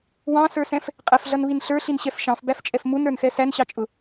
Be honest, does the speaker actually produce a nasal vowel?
yes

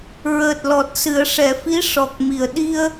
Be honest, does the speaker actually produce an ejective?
no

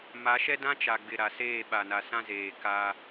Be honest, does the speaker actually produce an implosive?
yes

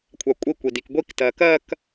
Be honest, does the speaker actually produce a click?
no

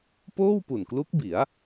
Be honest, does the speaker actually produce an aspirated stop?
no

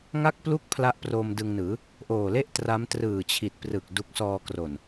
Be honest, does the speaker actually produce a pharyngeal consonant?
no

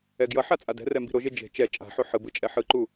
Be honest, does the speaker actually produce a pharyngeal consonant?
yes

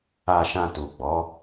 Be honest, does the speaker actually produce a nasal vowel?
yes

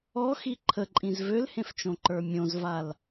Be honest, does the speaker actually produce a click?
yes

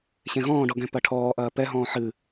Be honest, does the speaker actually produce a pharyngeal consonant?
yes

